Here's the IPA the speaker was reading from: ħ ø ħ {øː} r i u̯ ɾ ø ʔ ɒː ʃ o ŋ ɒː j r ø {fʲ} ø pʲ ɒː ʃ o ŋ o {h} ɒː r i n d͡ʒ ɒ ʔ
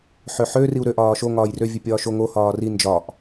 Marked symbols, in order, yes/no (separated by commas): no, no, yes